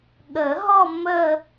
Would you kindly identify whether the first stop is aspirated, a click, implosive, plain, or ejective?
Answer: implosive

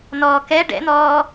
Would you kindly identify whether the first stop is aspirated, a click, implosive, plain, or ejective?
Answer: plain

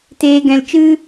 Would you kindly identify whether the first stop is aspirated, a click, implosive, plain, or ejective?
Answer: plain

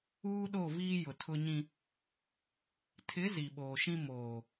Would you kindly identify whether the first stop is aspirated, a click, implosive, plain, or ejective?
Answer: implosive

